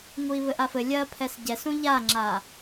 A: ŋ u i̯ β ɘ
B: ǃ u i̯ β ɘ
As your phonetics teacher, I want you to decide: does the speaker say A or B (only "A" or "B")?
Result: A